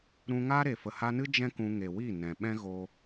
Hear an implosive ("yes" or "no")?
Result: yes